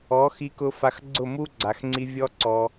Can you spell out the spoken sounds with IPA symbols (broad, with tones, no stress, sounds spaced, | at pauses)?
ɔ˨˦ x i˧ k ʊ˧ f a˨ x ɡ͡ǀ ʊ˦˨ m u˦ ɡ͡ǀ a˨ x ŋ͡ǀ i˧ vʲ ɔ˦ ǀ ɔ˧